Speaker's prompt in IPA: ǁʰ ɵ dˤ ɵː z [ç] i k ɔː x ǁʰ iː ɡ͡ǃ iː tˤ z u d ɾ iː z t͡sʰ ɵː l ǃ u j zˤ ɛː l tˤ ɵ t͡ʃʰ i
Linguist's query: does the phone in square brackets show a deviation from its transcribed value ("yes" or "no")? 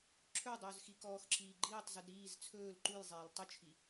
yes